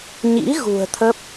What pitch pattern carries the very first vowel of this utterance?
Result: rising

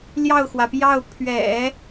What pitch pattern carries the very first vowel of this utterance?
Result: falling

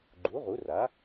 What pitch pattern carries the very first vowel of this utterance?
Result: rising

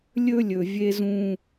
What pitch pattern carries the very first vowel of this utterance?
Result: high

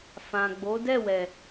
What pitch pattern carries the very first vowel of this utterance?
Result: low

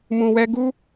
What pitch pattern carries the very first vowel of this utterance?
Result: low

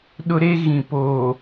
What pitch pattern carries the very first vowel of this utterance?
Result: high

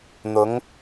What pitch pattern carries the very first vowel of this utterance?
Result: rising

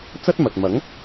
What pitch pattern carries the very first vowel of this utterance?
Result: high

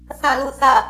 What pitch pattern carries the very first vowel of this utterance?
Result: falling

